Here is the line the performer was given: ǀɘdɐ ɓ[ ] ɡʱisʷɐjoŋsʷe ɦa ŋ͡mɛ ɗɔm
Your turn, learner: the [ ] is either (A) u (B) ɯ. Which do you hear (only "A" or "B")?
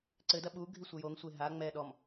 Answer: A